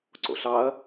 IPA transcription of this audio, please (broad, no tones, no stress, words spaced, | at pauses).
ǀo̰ɬɑɐ̯